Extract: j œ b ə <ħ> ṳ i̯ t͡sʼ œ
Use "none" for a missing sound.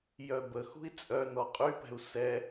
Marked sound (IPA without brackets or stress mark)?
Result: x